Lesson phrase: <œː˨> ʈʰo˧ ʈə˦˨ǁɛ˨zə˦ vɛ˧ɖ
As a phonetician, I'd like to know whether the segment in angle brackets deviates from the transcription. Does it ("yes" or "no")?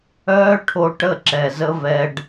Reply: yes